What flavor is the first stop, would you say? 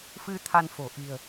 aspirated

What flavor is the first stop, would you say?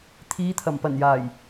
aspirated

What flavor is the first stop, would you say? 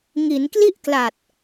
plain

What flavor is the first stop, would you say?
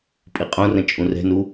ejective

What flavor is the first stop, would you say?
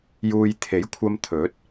aspirated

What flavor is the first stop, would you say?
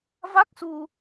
plain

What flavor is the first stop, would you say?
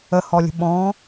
implosive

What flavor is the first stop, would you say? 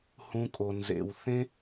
ejective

